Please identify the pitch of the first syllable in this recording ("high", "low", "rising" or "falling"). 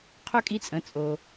high